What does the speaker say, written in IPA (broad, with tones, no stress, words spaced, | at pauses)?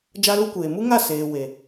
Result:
d͡ʒa˦lu˦kʷeː˨ mu˦ŋa˦˨ seː˨we˨